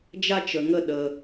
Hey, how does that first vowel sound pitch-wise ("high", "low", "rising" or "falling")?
high